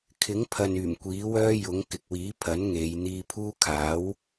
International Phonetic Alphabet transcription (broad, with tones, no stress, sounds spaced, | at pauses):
kʰ ɪ˨˥ ŋ pʰ ɐ˨ n yː˨˩ m kʷ iː˨˥ w œː˥ j ʊ˨˥ ŋ k ɪ˨ k̚ w iː˨˥ pʰ ɐ˨˥ n ŋ e˨˧ j n̪ iː˧ pʰ uː˥ kʰ aː˨˥ w